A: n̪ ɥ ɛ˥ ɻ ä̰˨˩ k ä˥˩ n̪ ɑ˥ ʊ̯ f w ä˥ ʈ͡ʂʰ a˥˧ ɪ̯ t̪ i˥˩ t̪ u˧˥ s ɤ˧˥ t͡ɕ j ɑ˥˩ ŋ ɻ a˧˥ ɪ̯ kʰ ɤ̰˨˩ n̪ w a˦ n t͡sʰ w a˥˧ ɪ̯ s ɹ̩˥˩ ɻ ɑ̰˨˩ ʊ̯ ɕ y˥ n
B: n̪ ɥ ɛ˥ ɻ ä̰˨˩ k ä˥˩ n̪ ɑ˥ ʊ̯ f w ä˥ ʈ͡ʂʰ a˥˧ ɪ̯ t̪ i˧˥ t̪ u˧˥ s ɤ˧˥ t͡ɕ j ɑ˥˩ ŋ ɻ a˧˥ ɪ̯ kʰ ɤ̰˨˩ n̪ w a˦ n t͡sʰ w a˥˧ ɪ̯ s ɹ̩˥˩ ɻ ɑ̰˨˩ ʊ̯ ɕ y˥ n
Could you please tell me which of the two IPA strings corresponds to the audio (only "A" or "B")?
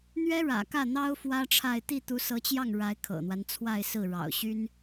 A